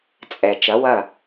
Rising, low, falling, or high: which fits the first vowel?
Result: low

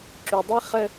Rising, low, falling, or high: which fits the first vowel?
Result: low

